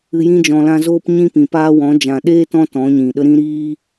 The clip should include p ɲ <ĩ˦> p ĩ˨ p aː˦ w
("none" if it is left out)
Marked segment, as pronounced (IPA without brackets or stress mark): ĩ˦